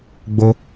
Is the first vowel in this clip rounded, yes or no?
yes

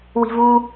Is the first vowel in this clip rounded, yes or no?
no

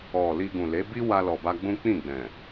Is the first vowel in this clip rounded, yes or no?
yes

